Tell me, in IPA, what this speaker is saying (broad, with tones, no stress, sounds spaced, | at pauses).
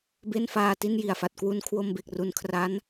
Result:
b e˥˩ n f aː˧ t i˥˩ n j i˨˩ a̯ f a˨˩ t̚ k w u˧ n kʰ w o˧ m b e˨˩ k̚ r u˨˩ n kʰ r a˦˥ n